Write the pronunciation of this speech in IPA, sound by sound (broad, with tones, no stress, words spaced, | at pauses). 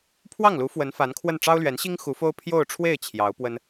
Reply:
pʰwɑ˥˩ŋlu˧˥ fwə˧˥nfa˧˥nkʰwə˥˩n ʈ͡ʂɑ˥ʊ̯lɥɛ˧˥nɕi˥ŋ xu˧˥fo˥ʊ̯ pʰjo˥˧ʊ̯ʈ͡ʂʰwe˥˩ɪ̯ t͡ɕʰjɑ˧˥ʊ̯ pwə˥n